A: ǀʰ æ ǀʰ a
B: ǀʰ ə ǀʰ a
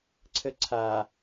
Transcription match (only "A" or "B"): B